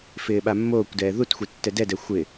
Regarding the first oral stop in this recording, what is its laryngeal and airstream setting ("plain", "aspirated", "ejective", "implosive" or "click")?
implosive